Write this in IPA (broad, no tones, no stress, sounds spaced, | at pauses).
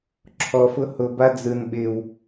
ǁʰ ɔ f ʊ h ʊ b a d͡z ɯ n ɓ ɪ w